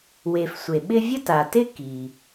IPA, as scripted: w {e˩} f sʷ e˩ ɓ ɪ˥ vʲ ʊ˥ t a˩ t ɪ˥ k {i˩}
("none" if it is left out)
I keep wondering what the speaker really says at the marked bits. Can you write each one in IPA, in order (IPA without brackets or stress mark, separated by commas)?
e˩, i˩